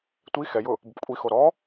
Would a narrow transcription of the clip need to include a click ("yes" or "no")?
no